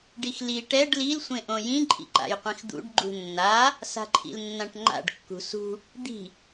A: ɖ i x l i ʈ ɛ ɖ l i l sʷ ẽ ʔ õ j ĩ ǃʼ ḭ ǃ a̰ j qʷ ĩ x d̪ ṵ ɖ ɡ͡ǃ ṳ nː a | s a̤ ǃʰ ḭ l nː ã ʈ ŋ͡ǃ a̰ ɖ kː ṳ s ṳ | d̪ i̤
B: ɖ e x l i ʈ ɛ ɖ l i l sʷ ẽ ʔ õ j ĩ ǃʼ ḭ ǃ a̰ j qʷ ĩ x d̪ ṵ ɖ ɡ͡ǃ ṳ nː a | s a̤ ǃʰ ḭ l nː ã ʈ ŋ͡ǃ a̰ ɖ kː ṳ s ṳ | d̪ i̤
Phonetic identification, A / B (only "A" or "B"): A